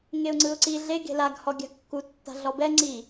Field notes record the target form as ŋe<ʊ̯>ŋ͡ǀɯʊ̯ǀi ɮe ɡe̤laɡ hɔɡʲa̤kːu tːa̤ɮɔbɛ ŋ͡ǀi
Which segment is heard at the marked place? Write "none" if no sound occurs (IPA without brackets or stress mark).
ʊ̯